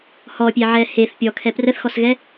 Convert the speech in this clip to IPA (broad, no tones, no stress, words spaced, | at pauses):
hɔpʲeʕɛ heθ pʲɔkʰɛ prəθxɔsɣɛ